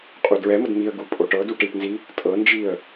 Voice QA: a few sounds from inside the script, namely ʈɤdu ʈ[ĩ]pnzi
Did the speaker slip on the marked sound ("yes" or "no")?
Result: yes